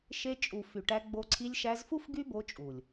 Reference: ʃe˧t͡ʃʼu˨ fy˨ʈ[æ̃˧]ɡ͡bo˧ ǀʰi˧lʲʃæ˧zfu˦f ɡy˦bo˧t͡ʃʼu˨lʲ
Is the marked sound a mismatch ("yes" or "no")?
yes